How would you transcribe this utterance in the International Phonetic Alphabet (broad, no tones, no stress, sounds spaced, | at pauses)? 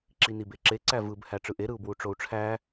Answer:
ǁ i n i b e ǁ e ǀ æ v ɯ b h æ ʈ͡ʂ ɯ ʔ e ɾ ɯ u̯ b w u ʈ͡ʂ o u̯ ʈ͡ʂʰ æ